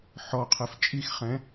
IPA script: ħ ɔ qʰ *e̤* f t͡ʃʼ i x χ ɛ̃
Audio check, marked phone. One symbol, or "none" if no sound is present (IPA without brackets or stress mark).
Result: e